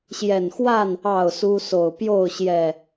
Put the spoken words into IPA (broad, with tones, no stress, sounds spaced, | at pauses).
ɕ j ɛ˨˩ n x w a˥˨ n | ɑ˥˨ ʊ̯ s u˦ s o˨˩ ʊ̯ p j o˥˨ ʊ̯ ɕ j ɛ˨˩